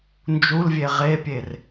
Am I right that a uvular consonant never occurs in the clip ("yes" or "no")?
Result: no